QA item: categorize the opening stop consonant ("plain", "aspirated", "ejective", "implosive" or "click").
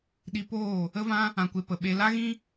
implosive